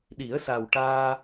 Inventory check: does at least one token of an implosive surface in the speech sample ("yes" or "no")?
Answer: yes